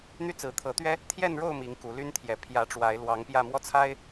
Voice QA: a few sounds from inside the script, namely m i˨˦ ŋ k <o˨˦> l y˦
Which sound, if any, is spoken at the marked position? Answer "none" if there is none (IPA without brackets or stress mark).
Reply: u˨˦